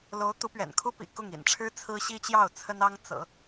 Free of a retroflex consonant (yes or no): no